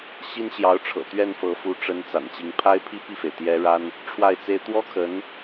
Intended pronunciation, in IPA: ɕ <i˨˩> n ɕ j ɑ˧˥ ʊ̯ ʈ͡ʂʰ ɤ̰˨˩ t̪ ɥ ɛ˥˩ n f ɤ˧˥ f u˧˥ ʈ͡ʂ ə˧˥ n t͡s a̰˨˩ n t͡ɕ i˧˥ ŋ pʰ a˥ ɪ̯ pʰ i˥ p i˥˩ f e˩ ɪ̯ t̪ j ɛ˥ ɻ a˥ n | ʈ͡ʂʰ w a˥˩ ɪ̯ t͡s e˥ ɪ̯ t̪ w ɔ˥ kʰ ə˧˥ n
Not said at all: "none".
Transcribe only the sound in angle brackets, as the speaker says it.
i˥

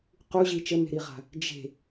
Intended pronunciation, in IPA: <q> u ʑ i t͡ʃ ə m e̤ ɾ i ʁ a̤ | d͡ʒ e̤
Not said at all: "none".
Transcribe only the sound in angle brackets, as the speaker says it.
q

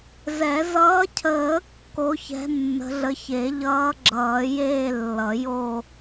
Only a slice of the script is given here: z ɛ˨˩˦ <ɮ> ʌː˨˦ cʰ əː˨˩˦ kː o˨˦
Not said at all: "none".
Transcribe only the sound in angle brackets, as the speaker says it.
z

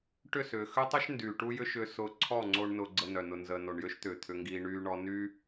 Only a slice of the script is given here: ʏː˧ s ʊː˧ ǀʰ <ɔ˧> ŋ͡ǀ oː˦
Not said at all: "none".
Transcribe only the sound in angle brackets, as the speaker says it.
ɔ˦˨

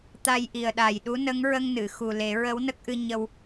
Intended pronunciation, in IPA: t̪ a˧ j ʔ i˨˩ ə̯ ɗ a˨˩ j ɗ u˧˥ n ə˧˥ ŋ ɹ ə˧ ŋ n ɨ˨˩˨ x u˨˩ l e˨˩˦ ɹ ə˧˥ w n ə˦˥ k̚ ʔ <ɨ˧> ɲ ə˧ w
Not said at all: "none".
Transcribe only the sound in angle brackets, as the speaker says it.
ɨ˧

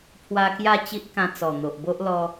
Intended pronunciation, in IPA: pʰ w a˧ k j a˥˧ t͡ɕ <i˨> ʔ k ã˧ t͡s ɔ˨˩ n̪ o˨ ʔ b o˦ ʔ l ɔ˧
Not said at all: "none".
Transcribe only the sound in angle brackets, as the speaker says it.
i˦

